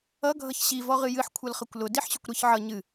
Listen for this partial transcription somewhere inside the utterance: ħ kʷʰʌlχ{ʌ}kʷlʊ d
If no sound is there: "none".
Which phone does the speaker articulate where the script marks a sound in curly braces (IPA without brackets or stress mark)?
ʌ